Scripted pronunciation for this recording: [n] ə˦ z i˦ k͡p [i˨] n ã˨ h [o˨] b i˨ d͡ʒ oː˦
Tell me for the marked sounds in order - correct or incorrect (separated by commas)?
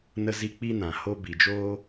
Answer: correct, incorrect, incorrect